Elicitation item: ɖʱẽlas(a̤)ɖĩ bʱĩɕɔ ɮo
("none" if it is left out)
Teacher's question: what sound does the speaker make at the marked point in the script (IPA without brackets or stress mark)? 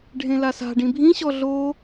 a̤